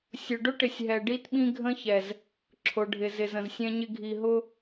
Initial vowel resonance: oral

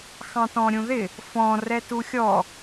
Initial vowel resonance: nasal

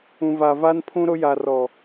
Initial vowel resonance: nasal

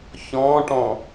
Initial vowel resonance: nasal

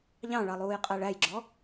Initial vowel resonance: nasal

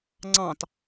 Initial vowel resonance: nasal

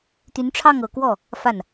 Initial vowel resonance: oral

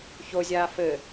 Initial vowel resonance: oral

